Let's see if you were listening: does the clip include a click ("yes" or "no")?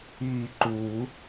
yes